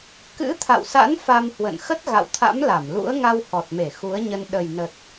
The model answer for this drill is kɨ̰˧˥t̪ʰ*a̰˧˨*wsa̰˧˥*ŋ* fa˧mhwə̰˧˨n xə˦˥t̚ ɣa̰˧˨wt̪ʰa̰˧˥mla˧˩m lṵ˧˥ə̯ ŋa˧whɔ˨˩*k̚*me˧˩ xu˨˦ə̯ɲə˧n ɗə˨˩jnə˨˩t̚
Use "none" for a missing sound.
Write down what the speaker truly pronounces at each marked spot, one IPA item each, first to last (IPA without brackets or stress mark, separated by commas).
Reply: a̰˧˨, n, t̚